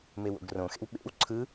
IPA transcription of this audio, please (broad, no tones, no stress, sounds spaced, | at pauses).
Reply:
m e w o̰ ɡ r õ x ḛ w ɓ ḛ w ǀʰ ɯ